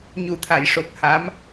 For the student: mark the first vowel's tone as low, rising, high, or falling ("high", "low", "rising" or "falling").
low